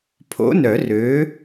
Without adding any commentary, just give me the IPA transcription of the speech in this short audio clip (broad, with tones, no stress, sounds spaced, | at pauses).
pʰ o̰˨˥ n œ˨˩˦ r ø˨˥